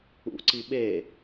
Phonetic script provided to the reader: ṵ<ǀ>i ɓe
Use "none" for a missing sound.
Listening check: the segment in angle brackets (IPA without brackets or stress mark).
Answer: ǀ